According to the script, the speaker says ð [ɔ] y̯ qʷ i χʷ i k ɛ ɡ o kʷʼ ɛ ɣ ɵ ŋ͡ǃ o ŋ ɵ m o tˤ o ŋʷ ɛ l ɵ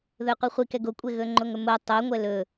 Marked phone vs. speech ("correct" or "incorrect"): incorrect